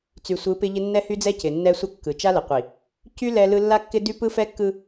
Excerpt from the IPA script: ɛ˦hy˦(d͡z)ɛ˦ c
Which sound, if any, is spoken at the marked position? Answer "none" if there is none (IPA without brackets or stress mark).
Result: d͡z